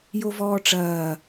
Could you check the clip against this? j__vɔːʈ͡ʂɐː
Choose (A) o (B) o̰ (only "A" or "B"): A